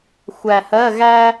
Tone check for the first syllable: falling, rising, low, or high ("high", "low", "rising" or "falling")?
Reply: low